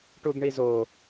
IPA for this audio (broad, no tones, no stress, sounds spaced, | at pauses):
ʈ u ɡ ɳ i z o